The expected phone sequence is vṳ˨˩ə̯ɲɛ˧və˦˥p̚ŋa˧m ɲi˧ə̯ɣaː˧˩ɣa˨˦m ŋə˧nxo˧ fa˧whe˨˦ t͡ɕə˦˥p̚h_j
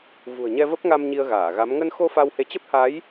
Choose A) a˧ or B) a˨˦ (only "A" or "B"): B